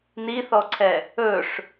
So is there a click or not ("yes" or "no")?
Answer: yes